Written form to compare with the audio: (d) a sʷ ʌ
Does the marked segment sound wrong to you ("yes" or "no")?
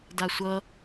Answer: no